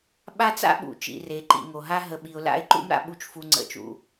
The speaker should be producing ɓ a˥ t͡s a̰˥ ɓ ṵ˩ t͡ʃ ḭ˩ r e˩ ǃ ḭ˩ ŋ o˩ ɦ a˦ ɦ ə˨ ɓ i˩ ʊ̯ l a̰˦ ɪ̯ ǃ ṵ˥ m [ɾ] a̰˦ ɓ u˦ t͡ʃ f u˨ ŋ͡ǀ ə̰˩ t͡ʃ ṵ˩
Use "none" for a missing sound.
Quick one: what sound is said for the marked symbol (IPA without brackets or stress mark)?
ɾ